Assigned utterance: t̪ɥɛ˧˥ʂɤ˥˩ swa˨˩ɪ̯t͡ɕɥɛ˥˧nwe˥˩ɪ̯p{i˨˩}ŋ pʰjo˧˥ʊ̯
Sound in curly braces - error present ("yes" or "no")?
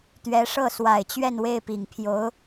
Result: no